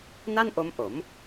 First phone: n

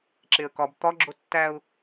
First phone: ǁ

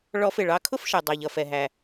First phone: ɭ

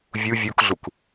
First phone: vʲ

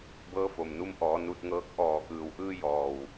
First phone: b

